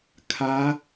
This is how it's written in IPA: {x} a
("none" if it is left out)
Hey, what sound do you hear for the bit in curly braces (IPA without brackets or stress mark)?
kʰ